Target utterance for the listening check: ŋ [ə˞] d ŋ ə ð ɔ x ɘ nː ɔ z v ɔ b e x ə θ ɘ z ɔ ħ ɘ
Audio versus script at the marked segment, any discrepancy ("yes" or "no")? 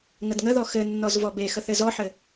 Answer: yes